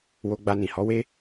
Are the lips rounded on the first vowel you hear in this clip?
yes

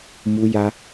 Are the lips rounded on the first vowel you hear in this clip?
yes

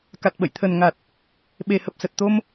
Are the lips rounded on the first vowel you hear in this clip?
no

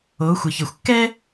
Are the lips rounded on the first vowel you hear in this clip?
yes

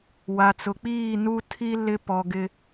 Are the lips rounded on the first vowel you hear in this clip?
no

